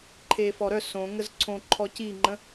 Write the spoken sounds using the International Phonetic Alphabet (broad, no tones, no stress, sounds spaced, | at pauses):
ǃʰ e f ɔ ɾ œ s õ ŋ ə z ǀʰ õ ǃʰ ɔ c i ŋ͡ǃ ə̃